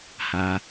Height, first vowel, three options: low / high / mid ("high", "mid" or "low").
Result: low